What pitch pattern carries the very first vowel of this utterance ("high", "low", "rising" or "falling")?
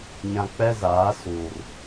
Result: low